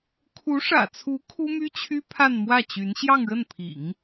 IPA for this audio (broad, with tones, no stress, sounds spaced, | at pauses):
kʰ u˧˥ ʂ ä̰˨˩ t͡sʰ u˧˥ kʰ u˥ m y˥ t͡ɕʰ y˥ pʰ a˥˧ n m w ä˥˩ t͡ɕ y˧˥ n ɕ j ɑ˥˧ ŋ ɻ ə˥˩ n pʰ ḭ˨˩˦ ŋ